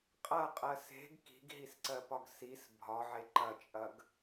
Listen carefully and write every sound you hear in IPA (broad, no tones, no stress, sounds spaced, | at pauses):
qʼ ɐ qʼ ɜ s e̤ ɡ k i̤ ɡ ɦ i s ǀ ɜ p ɒ ɡ s i s bʱ ɒ ʕ e ǃ ɐ t͡ʃʼ ɐ ɡ